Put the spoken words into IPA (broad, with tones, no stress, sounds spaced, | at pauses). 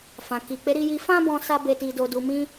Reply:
f ã˨ k i˨ k͡p e˨˦ ɾ i˧ j i˧ f ã˦ b ɔ̃˧ s a˧ b e˨ t i˨ d o˨ d u˨ m ĩ˧